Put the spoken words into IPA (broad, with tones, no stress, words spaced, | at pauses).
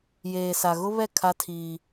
jeː˨sa˨ɣʊ˦βɛ˦˨ kʰa˦tʰiː˦